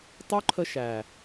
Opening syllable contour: high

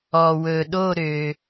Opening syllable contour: low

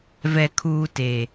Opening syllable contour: low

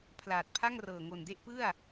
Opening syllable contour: low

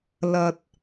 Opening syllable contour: low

